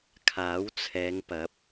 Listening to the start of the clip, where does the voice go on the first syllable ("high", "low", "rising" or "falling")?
rising